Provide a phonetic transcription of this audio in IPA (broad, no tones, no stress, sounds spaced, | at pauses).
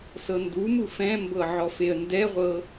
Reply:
s ɤ n d u m u f ɛ̃ m b ɤ ʕ ɔ f e ə̯ n d ɛ ʁʷ ɤ